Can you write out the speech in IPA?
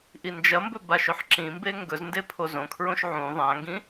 ʔ i n d͡ʒ ɐ m b ɵ b a ʃ ɵ ħ ǁ ĩ m b e ŋ ɡ ɵ z n d e pʰ o z õ kʰ ɹ õ ʃ ʕ ũ ðˤ ã ŋ ɡ ĩ

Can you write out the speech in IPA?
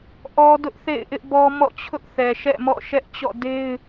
ʔ ɔ˦ d ʊ˦ ʔ θ ḛ˦˨ ɪ̯ ʔ ɪ˦ ʔ b ɔ˦ m ɔ̰˦˨ t͡ɕʰ ʊ˦ ʔ θ ɛ˨ ʃ ɛ̰˦˨ m ɔ̰˦˨ ʃ ɛ˦ ʔ t͡ɕ ɔ̰˦˨ d e˦ ɪ̯

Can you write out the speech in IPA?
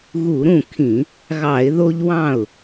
ɣ u˧˩˧ ɾ ũ˥˩ kʰ ĩ˧˩˧ | ɣ ɑ˧˩˧ ɪ̯ ð o˦ ʎ w ɑ̃˥˩ ʊ̯

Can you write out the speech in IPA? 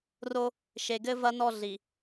r o˦ | ʃ e˨ ɡ ɘ˦ v ɐ˦ n ɔ˦˨ ɮ i˨

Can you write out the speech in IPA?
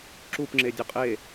ǁ u p ŋ͡ǁ e dʲ ʌ qʼ e

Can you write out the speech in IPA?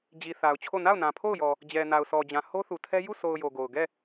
d͡ʑ i˨ θ a˨ ʊ̯ t͡ɕʰ o˦˨ n a˦˨ ʊ̯ n ã˨ pʰ o˦˨ ʊ̯ j ɔ˨ | d͡ʑ ɛ˨ n a˨ ʊ̯ s ɔ˨ d͡ʑ ã˨ h o˦ θ u˨ tʰ ɛ˦ j u˦˨ sʰ o˨ ʊ̯ j o˨ ɡ o˨ ʊ̯ ɡ ɛ˦˨

